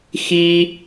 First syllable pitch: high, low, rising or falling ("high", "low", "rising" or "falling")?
high